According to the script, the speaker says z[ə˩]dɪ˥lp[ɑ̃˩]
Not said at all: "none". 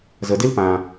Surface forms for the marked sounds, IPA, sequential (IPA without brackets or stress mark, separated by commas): ə˩, ã˩